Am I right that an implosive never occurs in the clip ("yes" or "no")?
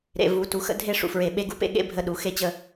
no